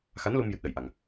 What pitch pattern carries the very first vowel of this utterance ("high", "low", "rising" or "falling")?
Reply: rising